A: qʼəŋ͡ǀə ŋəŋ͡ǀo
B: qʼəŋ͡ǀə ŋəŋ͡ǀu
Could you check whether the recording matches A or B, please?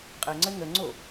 A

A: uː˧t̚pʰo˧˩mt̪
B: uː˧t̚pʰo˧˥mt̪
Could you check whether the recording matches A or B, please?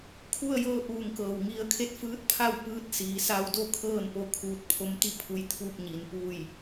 B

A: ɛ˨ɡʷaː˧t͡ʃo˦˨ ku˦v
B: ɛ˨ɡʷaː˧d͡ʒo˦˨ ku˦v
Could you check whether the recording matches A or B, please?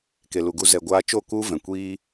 A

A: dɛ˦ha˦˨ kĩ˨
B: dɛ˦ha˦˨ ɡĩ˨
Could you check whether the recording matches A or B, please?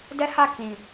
A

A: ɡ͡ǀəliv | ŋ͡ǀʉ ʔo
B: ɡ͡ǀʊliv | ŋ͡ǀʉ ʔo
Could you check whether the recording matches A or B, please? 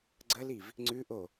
A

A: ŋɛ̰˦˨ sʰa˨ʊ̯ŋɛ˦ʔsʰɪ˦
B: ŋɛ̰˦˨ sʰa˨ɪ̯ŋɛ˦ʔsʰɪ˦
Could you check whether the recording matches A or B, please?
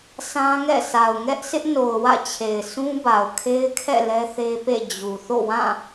A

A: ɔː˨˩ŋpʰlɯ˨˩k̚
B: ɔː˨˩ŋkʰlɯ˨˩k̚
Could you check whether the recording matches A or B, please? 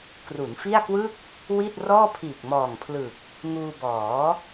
A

